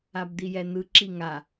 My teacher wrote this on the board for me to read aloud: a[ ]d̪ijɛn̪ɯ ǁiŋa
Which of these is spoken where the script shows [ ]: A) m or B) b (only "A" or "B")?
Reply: B